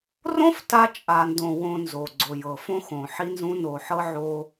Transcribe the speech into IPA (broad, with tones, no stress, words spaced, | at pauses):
rõ˦f ta˦t͡ʃʼa˨ndõ˨ wõ˨ nzo˨ɡ͡ǀo˨jɤ˨ fõ˦xõ˨ħi˦nzũ˦ no˨ ħɤ˦ʕo˦